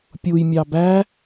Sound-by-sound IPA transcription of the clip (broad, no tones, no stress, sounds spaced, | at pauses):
pʲ u j mʲ ɑ b æ